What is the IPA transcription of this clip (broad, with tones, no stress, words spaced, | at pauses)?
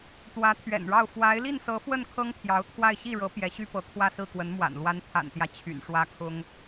t̪wä˧˥t̪ʰɥɛ̰˨˩nɻɑ˥˩ʊ̯ fwa˧˥ɪ̯ li˥˩nsɤ˧˥fwə˥˩n kʰɤ˥ŋpʰjɑ˧˥ʊ̯t̪ʰwa˥˧ɪ̯ ɕi˥˩ɻɤ˧˥ pjɛ˧˥ɕy˥pɤ˧˥ kʰwä˥˧sɹ̩˥˩ kwə˧˥nmwa̰˨˩n lwa˧˥n t̪ʰa̰˨˩nt̪jä˦ t͡ɕʰy̰˨˩n ʂwä˥kʰʊ˥ŋ